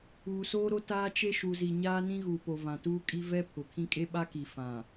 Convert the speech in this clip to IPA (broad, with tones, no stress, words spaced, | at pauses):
uː˨soː˦ɾo˦ taː˦t͡ʃe˦ ʃu˨zi˨ɲaː˦ nĩ˦ɣuː˨ po˨vã˨tuː˦ kʼi˦ vɛ˦ pʰʊ˨kʰĩ˦ kʼe˦ɓa˦ki˨ fã˨